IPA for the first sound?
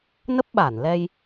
n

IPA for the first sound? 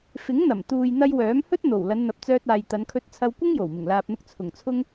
f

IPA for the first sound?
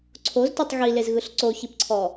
ǀʰ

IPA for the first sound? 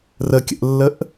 r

